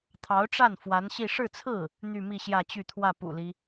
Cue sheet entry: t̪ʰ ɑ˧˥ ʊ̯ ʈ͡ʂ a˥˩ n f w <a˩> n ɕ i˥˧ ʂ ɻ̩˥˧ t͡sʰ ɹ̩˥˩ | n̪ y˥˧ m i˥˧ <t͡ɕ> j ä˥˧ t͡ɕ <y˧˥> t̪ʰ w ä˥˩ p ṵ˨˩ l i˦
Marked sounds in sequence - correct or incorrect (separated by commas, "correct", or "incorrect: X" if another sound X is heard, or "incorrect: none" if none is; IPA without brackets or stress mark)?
incorrect: a˧˥, incorrect: ɕ, incorrect: y˥˧